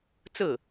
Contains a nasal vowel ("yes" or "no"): no